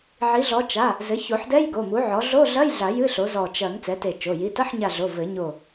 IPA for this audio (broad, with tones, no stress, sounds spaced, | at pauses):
ʕ i˩˥ ɮ ɔ˩˥ t͡ʃ a˩˧˩ | z ɘ˩˥ ç o˨˩˦ ħ d ɛ˧˥˧ j ɡ o˩˧˩ m u˩˥ ʕ ɔ˩˥ ɮ o˧˥˧ ɮ ɐ˧˥˧ j ɮ a˨˩˦ j ɨ˧˥˧ ɬ o˩˥ z ɔ˧˩ t͡ʃ ɐ˨˩˦ ŋ t͡s ɛ˩˥ t e˧˩ t͡ʃ o˩˧˩ j i˩˧˩ t ɐ˧˥˧ ħ ɲ a˧˩ ɮ o˩˧˩ v ɘ˨˩˦ ɲ o˧˩